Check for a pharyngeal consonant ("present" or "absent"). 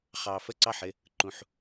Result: present